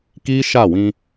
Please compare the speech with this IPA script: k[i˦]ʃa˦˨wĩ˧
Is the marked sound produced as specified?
yes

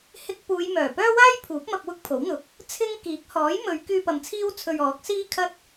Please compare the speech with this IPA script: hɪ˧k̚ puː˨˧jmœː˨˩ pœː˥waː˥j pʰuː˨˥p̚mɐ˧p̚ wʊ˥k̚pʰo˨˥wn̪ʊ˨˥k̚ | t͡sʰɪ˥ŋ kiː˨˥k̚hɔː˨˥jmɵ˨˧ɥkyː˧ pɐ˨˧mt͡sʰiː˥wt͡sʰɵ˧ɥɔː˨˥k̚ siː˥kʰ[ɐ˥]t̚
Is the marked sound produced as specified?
yes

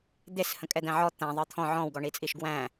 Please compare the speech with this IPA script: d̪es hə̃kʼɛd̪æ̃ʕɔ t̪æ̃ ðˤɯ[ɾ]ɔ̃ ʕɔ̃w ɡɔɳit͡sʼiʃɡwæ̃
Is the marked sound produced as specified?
no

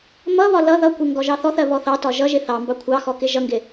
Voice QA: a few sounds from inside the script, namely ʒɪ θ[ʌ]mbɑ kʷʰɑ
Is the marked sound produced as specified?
no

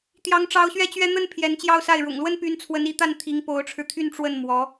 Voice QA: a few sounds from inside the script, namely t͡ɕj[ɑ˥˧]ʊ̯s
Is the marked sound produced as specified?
yes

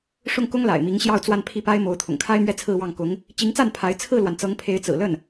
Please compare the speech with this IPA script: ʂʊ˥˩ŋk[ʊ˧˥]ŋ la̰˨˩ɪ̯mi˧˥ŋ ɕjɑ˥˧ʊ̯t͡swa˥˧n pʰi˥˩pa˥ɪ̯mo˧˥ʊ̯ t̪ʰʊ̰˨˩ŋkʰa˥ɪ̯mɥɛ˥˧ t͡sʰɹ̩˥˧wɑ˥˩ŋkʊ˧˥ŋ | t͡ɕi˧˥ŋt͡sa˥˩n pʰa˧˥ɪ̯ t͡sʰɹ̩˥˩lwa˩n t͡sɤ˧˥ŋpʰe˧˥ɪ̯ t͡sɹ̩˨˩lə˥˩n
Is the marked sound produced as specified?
no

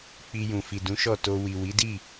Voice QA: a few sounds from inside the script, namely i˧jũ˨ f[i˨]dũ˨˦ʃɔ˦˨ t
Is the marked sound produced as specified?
yes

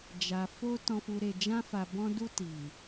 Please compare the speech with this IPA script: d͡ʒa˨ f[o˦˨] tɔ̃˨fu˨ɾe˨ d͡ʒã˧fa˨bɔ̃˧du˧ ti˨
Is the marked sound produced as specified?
no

